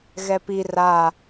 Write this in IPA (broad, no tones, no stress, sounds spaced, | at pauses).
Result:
ɣ ɛ p i r a